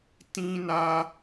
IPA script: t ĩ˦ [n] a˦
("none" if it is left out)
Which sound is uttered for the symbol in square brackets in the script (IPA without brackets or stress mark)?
n